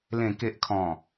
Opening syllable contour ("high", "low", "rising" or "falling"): low